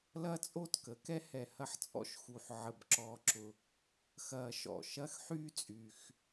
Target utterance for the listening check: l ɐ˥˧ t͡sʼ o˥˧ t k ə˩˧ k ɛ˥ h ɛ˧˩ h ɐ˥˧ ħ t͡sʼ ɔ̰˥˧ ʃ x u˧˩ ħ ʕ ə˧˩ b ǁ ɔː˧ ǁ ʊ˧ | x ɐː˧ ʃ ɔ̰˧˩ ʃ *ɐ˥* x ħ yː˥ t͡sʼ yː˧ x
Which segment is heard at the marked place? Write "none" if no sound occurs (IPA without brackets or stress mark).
ɐ˥˧